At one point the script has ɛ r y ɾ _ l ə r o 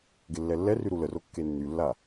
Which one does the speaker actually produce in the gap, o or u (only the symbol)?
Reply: u